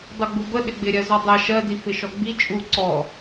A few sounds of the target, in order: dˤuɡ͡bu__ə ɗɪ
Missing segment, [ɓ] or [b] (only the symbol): b